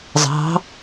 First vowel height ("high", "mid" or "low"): low